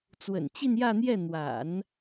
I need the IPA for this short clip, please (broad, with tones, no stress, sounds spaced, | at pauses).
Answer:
t͡s w ə̰˨˩ n t͡ɕ i˥˧ n j ä˥˧ n̪ j ɛ˥˩ n̪ w a̰˨˩˦ n